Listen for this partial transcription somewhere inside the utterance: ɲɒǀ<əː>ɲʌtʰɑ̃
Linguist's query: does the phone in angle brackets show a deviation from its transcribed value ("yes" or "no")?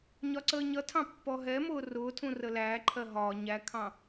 no